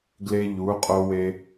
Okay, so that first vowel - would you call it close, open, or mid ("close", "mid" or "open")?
mid